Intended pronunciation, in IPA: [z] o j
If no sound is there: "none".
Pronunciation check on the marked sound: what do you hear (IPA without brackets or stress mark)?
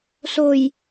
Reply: s